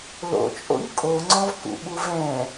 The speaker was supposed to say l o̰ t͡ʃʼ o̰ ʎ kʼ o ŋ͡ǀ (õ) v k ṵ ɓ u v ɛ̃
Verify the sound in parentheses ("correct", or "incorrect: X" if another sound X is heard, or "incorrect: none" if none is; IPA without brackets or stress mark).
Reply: incorrect: ɔ̃